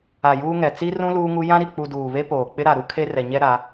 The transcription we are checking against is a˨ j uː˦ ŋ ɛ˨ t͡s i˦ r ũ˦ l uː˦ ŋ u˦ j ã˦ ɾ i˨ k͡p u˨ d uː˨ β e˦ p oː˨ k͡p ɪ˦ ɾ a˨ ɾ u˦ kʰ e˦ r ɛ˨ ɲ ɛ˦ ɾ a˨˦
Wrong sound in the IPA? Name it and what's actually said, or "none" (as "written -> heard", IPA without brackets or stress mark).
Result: none